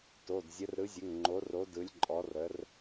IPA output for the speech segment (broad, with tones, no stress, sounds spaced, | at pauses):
t o˩˧˩ d zʲ ə˨˥ r ɾ ɯ˨˥ zʲ ə˩˧˩ ŋ ŋ͡ǃ o˨˥ r o˨˥ d ɯ˨˥ lʲ ǃʼ ɔ˨˥ r ə˨˥ r